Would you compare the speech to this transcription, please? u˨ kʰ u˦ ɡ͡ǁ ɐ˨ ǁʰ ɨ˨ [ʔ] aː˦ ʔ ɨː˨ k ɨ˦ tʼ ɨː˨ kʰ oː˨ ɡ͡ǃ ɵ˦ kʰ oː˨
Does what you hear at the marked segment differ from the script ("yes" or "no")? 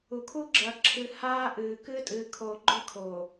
yes